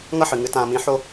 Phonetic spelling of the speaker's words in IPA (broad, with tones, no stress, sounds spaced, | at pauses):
ŋ ʌ˦ ħ ɨ˨ ŋ ɨ˨˦ t ãː˧ m ĩ˧ ħ o˦